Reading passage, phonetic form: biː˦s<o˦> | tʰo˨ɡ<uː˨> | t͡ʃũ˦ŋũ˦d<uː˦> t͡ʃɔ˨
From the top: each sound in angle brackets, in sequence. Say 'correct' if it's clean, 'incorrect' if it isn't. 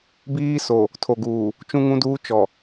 incorrect: o˨, correct, correct

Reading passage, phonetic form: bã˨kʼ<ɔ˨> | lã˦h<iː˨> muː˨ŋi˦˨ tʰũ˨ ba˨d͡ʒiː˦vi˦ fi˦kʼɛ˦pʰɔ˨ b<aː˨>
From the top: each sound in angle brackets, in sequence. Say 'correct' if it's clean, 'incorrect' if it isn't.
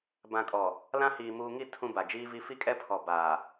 correct, correct, correct

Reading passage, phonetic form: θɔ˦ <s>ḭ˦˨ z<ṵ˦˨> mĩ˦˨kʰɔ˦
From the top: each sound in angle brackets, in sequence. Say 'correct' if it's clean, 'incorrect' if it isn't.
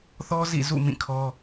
incorrect: z, correct

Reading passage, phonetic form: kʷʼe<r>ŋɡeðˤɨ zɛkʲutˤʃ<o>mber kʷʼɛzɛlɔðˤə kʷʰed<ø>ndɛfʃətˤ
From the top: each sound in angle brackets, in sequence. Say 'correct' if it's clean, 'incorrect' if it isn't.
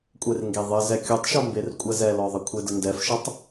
correct, incorrect: ɔ, incorrect: ə

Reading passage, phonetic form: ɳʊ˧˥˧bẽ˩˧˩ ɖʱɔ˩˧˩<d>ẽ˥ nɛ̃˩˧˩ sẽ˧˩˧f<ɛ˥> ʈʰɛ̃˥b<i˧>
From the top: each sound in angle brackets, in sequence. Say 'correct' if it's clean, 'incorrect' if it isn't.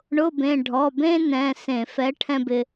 incorrect: b, incorrect: ɛ˨˥, incorrect: ɪ˧

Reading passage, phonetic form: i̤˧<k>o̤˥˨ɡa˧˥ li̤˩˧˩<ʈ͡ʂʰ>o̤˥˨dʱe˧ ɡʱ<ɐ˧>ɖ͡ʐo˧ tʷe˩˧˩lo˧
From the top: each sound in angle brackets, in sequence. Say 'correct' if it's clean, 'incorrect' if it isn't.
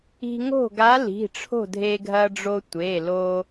incorrect: ŋ, correct, correct

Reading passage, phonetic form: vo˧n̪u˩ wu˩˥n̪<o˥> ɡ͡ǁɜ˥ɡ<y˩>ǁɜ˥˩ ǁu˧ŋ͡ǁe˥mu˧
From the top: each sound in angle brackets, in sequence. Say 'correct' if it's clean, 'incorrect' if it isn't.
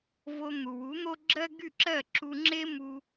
correct, incorrect: y˥˩

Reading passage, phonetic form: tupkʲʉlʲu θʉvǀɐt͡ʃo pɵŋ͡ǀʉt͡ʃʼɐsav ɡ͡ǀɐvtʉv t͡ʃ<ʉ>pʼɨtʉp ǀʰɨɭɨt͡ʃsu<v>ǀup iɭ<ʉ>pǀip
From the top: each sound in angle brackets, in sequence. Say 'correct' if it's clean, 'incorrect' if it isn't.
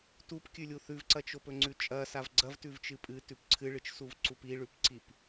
incorrect: ɨ, correct, correct

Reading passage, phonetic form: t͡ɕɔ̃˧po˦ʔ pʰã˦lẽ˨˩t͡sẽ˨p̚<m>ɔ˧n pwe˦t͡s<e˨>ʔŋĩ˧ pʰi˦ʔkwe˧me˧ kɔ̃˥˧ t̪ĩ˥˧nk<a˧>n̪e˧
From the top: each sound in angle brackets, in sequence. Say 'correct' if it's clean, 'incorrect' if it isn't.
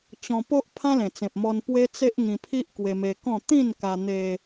correct, incorrect: e˦, correct

